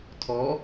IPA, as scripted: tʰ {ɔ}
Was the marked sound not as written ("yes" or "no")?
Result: no